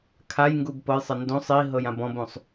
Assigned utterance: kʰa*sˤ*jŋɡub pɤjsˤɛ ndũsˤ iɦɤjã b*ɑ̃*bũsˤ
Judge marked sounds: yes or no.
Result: no, no

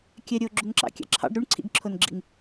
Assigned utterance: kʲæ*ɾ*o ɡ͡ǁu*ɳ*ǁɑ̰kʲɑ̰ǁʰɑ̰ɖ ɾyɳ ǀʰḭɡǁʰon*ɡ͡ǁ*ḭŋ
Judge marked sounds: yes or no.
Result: no, no, yes

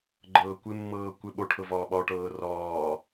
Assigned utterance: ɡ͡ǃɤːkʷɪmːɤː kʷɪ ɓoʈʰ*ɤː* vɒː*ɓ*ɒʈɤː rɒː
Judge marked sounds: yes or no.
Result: no, yes

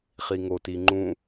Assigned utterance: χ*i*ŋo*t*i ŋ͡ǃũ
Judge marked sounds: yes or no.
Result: yes, yes

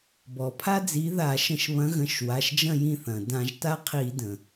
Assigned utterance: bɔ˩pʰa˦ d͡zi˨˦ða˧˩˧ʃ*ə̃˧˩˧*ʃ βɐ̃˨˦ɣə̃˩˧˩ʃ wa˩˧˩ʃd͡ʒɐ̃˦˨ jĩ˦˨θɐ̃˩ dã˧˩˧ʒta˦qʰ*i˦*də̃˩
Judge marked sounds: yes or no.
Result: yes, no

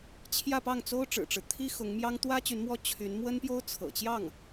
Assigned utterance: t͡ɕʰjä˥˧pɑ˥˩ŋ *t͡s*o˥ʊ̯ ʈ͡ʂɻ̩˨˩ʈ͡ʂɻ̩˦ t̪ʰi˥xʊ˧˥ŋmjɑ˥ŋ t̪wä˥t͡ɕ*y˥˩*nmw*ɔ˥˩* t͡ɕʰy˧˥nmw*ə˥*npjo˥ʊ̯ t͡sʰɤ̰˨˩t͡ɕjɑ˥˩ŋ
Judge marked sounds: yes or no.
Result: yes, no, yes, yes

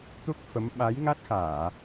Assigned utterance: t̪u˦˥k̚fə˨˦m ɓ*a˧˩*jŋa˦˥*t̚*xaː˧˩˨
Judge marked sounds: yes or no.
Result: no, yes

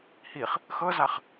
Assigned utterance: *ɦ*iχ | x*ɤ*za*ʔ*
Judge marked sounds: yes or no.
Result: no, yes, no

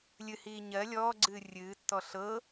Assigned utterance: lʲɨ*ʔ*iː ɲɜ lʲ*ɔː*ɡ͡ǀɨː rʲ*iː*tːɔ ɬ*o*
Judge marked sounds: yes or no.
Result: no, yes, no, no

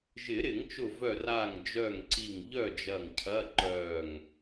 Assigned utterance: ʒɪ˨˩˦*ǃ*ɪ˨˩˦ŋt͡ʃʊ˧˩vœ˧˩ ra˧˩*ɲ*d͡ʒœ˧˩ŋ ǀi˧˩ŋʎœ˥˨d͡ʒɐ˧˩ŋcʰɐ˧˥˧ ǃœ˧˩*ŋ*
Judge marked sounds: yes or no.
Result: no, no, yes

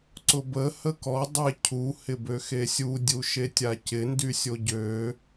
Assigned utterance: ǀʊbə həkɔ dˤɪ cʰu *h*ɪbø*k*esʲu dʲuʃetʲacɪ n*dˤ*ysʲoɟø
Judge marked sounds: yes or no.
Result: yes, no, no

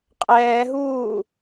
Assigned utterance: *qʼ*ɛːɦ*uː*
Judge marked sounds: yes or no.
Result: yes, yes

